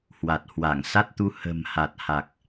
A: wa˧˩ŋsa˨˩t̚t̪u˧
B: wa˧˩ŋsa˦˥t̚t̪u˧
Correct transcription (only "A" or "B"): B